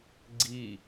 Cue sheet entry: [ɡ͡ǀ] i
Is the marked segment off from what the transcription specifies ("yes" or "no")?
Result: no